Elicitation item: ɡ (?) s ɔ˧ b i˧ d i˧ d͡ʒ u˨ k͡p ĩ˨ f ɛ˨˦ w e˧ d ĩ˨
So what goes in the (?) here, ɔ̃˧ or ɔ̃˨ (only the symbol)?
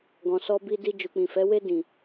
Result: ɔ̃˨